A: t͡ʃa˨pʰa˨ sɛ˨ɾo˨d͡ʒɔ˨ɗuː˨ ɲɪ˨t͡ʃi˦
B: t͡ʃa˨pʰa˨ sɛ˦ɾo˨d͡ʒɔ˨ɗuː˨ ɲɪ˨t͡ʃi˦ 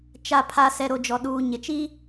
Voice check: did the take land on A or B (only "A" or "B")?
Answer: A